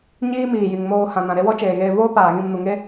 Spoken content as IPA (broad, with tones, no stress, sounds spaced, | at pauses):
ɲ iː˦ m iː˨ j i˨ ŋ m oː˧ h ã˨ n ã˨ ɾ e˦ w ɔ˦ t͡ʃ eː˨ ɣ eː˧ v oː˦ p aː˨ ɣ ĩ˧ m n u˨ ŋ e˦